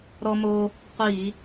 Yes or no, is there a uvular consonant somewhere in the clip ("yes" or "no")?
yes